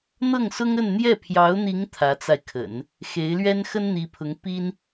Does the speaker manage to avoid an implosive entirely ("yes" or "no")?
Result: yes